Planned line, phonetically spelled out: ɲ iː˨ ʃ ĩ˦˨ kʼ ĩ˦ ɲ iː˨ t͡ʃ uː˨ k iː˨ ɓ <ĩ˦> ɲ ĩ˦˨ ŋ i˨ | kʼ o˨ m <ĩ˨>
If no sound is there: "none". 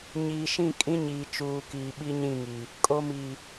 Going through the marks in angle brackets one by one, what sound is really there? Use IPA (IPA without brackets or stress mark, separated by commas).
i˦, i˨